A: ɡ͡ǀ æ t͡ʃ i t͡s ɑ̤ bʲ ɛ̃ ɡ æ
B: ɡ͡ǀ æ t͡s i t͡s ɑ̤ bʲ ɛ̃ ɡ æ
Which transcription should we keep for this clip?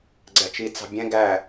A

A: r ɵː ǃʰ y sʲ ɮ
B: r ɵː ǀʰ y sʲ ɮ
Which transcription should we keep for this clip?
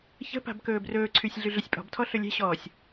B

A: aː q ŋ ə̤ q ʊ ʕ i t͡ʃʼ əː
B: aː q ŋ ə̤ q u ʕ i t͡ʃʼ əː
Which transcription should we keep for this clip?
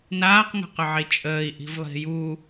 A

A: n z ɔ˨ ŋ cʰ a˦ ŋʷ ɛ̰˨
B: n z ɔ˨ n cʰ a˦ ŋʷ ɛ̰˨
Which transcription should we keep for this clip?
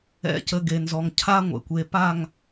A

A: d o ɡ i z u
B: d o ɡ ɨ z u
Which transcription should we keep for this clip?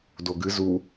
B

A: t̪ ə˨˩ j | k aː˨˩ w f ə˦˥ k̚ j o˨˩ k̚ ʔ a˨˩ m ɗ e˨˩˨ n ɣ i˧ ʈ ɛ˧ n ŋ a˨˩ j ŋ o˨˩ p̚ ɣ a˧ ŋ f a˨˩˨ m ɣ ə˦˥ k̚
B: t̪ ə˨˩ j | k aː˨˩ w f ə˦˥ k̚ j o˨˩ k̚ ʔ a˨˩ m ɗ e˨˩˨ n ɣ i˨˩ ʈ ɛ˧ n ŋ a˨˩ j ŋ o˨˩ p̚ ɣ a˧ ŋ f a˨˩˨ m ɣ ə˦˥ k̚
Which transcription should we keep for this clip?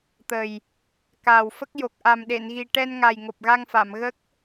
B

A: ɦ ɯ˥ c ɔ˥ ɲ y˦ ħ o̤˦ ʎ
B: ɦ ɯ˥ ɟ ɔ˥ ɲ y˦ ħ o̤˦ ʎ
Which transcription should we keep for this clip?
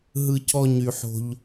A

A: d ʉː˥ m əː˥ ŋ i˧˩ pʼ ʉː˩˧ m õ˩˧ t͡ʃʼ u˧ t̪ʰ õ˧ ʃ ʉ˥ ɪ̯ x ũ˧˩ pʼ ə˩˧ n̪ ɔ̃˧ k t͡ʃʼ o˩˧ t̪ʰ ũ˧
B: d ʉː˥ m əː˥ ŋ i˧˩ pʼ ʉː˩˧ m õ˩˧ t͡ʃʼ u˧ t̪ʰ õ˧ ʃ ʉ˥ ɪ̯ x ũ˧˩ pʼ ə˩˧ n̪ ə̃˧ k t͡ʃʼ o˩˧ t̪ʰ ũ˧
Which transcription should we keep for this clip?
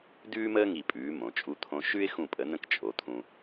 B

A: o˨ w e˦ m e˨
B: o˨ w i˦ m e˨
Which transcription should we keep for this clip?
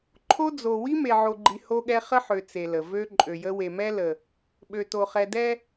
B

